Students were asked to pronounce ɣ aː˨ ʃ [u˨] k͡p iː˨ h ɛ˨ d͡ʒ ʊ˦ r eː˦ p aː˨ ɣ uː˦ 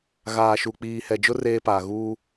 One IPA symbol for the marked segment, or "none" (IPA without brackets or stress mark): u˨